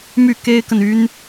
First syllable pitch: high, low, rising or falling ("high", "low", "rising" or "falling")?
falling